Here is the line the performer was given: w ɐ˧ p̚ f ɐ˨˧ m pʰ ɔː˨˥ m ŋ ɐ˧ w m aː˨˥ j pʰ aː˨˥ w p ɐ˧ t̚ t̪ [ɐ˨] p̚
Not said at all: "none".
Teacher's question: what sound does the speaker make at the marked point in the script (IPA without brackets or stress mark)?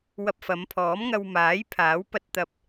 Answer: ɐ˧